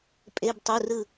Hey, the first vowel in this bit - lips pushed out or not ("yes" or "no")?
no